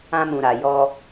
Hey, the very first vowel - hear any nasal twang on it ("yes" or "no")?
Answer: yes